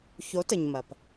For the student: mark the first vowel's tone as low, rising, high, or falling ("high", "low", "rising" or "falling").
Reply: rising